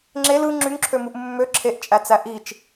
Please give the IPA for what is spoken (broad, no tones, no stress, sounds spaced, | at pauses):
ŋ͡ǁ e l ɯ ŋ͡ǁ y ŋ ǁʰ ø m u ʔ mː ø ǁʰ e ʔ t͡ʃʼ æ t͡s æ ʔ i t͡ʃ